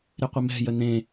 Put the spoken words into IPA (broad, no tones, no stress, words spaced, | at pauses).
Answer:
ɾɪqʷɪmɛ̤ jənẽ